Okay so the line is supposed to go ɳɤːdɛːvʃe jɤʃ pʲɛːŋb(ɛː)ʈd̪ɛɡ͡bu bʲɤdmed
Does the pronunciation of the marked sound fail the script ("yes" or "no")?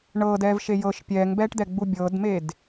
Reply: no